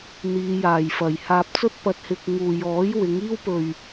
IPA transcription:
n̪ iː˨˧ j aː˨ j f ɐ˨ j h aː˧ p̚ t͡s ɵ˥ t̚ p ɐ˧ t̚ h ɪ˧ k̚ ŋ uː˨ j ɔː˨˥ j w ɪ˨˥ ŋ iː˥ w p ɵ˧ ɥ

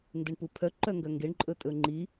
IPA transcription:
n d e ɳ p u pʰ œ ǃ œ ŋ ɡ œ ŋ ɡ e ɳ ǃʼ ɵ tʼ ɵ ŋ͡ǃ i

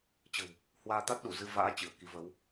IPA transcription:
t͡ɕ ə̤˨˩ w | h w aː˧ t̪ a˦˥ t̚ ɗ u˧˩ z ɨ˧ v a̰ː˧˥ t͡ɕ ɨ˧˩ ə̯ k i˨˦ v ə˨˦ w

